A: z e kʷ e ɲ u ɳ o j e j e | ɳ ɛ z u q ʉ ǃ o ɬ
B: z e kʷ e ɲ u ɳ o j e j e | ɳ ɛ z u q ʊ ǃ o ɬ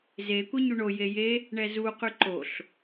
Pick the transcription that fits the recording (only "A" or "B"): A